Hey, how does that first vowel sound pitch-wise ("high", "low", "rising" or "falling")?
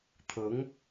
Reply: rising